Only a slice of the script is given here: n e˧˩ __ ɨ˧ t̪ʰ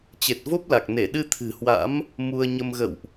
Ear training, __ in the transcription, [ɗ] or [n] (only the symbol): ɗ